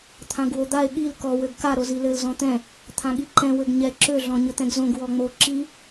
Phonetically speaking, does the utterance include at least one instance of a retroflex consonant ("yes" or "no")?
no